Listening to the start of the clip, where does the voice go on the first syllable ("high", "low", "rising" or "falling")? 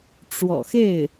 low